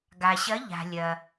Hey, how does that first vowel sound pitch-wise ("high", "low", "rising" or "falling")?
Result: low